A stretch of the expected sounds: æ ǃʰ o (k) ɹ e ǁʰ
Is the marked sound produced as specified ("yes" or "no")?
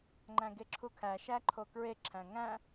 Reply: yes